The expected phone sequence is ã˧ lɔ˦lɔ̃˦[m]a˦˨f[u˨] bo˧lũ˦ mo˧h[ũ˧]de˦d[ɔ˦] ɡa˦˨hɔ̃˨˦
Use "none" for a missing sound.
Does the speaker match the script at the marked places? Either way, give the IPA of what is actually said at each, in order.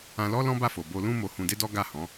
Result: b, o˨, ũ˧, ɔ˦

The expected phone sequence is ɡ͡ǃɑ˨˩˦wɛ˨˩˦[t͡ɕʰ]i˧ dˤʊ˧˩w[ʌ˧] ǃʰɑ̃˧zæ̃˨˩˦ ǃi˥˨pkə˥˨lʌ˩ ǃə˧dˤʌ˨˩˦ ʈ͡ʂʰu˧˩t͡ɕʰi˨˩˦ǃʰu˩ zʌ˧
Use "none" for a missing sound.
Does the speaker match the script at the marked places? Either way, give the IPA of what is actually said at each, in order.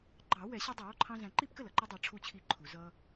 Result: ɕ, ɔ˧

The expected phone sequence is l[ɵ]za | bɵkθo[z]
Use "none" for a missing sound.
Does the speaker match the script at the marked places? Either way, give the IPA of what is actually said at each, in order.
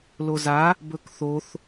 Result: o, θ

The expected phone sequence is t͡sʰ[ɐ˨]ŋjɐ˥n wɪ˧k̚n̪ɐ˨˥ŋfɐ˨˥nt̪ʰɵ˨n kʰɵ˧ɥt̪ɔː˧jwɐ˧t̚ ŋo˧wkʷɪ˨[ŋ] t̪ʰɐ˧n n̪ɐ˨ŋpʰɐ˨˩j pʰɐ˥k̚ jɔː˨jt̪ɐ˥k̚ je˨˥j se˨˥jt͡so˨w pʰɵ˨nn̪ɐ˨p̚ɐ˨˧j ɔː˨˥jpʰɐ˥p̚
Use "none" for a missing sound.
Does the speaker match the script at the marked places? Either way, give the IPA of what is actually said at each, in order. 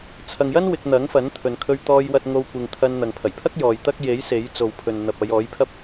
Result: ɐ˨, ŋ

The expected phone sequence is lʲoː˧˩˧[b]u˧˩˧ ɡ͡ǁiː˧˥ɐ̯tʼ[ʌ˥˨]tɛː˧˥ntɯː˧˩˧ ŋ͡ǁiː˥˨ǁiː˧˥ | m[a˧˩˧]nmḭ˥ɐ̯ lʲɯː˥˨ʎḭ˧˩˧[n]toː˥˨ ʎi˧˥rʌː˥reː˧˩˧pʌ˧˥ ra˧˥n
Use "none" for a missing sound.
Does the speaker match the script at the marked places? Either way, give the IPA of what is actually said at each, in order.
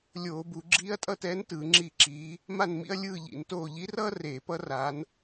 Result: b, ʌ˥˨, a˥˨, n

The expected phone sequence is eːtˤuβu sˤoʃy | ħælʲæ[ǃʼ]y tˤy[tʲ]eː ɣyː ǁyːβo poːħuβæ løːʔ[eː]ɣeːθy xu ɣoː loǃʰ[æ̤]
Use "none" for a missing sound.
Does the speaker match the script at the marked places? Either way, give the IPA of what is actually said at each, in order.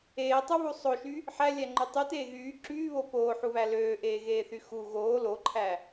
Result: ŋ͡ǃ, t, eː, æ

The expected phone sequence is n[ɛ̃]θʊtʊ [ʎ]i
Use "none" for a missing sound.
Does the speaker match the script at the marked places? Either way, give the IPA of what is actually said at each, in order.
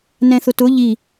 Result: ɛ̃, ʎ

